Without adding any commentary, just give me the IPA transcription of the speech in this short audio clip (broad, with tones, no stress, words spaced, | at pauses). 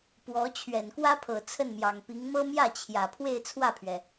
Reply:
pwɔ˧˥ t͡ɕʰɥɛ˨˩nkwä˥pʰɤ˨˩ t͡sʰə˥˩nmjɑ˨˩ŋpi˧˥ŋ mɤ˥mjä˥˩t͡ɕʰjä˨˩ pʰwe˥˧ɪ̯ t͡sʰwä˥˩pʰɥɛ˩